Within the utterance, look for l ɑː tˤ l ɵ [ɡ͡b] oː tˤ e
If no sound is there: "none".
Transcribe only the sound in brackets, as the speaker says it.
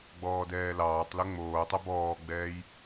ŋ͡m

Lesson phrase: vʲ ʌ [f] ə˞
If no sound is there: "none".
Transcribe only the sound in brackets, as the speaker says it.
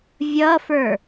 f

